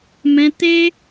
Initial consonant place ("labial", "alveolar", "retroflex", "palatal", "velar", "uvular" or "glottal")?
labial